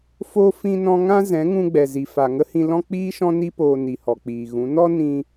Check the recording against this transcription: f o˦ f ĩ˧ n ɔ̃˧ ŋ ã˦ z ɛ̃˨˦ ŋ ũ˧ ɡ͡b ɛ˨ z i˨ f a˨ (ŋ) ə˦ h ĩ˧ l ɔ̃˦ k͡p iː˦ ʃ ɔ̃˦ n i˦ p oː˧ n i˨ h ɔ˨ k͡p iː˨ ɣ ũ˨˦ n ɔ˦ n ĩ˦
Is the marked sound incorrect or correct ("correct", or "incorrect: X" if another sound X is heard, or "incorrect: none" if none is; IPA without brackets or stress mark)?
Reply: correct